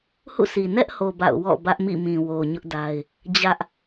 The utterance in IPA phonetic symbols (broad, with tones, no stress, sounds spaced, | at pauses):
h ṵ˦˨ sʰ i˨ n ɛ˦ ʔ h o˨ b a̰˦˨ ʊ̯ w ɔ̰˦˨ b ä˦ ʔ m ḭ˦˨ m ĩ˨ w o˨ ɲ ʊ˦ ʔ d a˦ ɪ̯ | d͡ʑ ä˦ ʔ